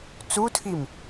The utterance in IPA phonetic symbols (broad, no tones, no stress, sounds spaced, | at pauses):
t͡s u tʰ i m